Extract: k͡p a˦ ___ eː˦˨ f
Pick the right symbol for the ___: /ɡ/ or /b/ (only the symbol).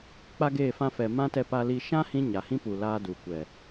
ɡ